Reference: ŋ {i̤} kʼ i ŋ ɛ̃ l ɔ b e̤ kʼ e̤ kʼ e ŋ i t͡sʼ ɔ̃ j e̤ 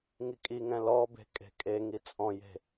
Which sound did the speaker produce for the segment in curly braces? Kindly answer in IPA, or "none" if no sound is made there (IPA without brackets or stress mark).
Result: i